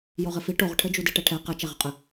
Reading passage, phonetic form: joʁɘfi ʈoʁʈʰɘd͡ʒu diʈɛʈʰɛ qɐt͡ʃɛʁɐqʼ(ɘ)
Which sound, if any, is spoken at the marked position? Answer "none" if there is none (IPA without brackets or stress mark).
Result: ɘ